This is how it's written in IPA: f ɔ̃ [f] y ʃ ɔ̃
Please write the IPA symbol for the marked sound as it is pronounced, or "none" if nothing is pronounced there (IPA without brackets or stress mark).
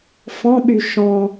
ɓ